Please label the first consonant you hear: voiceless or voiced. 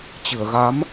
voiceless